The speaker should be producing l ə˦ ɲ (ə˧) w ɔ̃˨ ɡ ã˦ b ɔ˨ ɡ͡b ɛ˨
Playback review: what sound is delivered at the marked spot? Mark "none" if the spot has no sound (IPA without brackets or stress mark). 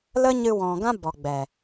ɨ˧